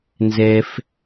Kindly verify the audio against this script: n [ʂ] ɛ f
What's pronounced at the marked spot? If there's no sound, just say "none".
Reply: z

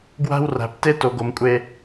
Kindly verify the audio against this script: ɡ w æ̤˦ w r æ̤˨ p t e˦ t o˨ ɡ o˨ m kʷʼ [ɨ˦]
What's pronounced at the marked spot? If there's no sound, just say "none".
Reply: e˦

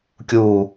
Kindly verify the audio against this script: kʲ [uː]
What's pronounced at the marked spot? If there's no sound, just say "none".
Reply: uː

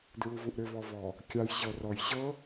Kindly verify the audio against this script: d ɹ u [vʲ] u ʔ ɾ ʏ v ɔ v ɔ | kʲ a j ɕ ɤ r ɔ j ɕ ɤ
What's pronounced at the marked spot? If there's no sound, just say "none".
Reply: v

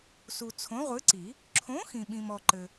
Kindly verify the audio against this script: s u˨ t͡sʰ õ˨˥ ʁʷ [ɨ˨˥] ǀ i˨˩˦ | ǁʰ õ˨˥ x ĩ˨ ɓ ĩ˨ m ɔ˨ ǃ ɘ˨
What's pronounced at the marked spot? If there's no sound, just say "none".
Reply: ɨ˨˥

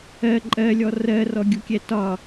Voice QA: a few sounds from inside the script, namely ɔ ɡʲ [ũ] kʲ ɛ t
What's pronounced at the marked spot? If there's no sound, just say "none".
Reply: u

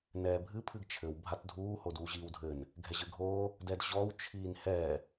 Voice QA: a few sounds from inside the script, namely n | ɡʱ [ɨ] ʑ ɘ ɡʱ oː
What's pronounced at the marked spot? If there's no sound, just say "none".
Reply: ɛ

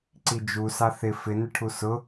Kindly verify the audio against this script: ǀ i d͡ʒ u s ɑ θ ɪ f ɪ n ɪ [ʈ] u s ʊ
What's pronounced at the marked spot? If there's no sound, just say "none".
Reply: ʈʰ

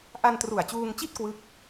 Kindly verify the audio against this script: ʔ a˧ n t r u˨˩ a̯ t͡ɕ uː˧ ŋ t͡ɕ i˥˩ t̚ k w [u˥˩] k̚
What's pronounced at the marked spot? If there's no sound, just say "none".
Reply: ɯ˥˩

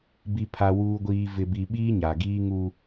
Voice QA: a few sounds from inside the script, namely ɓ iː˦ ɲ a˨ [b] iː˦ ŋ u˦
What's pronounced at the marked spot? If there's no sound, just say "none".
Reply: ɡ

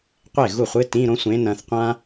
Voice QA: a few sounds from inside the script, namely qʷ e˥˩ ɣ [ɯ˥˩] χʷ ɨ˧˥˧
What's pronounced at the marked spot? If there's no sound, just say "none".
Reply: u˥˩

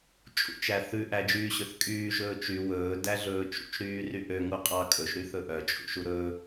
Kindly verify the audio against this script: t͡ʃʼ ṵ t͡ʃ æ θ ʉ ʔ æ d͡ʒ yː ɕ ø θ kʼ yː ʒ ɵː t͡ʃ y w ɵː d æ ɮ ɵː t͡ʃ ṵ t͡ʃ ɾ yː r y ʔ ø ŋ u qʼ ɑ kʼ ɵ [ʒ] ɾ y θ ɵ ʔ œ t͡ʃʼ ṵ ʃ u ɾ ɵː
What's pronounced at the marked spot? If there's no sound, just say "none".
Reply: ʃ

